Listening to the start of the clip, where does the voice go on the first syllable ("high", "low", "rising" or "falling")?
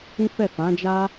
high